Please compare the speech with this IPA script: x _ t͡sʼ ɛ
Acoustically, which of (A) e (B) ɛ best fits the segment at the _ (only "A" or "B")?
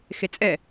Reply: A